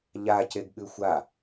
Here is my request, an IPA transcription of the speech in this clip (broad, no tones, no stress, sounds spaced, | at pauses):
ʎ a c e ɡ ɠ ʉ xʷ a